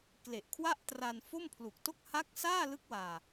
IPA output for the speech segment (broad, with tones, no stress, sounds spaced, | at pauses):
k l e˨˩ ʔ kʰ w a˥˩ ʔ t r a˧ n f o˥˩ m pʰ l u˨˩ k̚ t o˥˩ k̚ h a˦˥ k̚ s aː˥˩ l ɯ˦˥ k̚ w aː˧